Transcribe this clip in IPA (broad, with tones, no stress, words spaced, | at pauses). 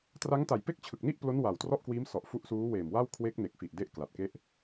tra˦˥ŋta˨˩jpe˥˩k̚ t͡ɕʰɯ˨˩k̚ni˥˩ʔplo˦˥n wa˨˩wtrɔ˥˩ʔkwiː˦˥m sɔ˨˩ʔfu˦˥ʔ suː˦˥weː˨˩mwa˥˩w kʰwe˦˥k̚ne˨˩k̚fi˨˩ʔ de˥˩ʔkla˨˩t̚ke˥˩ʔ